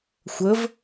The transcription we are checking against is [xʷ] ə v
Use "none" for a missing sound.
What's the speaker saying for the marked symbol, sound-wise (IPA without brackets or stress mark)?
xʷ